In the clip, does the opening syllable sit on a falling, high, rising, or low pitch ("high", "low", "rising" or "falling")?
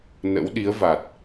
rising